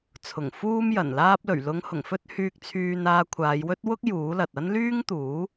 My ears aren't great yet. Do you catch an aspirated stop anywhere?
yes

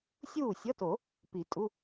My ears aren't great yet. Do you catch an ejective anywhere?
yes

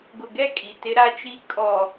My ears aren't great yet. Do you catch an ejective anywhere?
yes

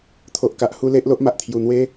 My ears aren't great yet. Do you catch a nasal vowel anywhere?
no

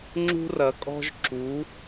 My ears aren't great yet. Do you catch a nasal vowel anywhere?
no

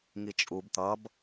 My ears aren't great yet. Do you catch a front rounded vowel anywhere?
no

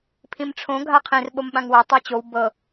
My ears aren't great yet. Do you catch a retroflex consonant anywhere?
yes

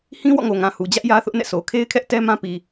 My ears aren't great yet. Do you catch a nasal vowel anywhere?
yes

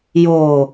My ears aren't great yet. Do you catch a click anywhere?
no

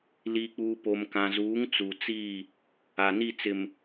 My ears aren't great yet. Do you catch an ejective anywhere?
no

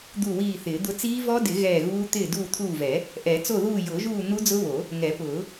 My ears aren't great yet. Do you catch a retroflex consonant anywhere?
no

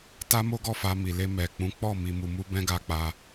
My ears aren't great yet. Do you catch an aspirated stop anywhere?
no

